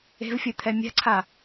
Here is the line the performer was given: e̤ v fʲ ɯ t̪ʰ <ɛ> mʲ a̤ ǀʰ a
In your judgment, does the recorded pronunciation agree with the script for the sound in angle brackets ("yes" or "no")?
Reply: yes